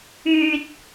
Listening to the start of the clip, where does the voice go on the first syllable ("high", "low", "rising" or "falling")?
low